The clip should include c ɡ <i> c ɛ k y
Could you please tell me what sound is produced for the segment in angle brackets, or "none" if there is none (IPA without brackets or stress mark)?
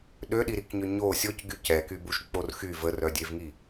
y